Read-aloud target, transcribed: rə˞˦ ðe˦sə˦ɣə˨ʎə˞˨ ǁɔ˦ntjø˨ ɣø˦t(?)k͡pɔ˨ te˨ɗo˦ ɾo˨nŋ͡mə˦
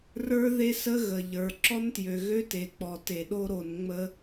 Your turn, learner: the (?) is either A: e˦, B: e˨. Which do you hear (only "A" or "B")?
B